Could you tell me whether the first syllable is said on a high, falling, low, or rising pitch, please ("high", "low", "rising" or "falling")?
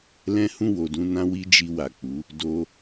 high